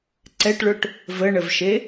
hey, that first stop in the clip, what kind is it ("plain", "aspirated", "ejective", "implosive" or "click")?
click